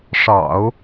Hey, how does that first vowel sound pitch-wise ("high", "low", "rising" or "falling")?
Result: low